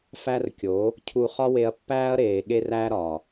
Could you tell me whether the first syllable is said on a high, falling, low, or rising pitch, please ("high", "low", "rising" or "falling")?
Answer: high